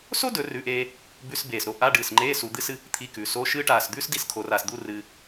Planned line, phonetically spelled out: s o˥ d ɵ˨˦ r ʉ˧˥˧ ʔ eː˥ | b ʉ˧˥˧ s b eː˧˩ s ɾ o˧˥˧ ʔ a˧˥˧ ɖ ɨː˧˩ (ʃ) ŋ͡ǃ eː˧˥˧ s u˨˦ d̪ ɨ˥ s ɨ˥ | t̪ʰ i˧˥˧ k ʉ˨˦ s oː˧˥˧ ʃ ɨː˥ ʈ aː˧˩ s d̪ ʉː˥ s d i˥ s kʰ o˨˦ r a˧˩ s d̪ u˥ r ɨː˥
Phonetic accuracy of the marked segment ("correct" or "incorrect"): incorrect